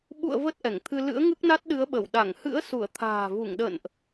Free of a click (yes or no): yes